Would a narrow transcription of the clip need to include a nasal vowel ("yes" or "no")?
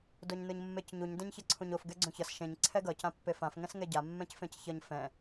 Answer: yes